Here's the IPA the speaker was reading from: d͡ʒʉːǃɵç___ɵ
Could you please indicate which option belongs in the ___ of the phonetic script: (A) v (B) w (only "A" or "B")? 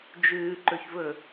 A